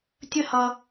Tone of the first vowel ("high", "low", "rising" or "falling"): high